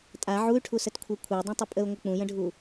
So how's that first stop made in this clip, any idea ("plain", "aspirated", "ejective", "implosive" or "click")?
ejective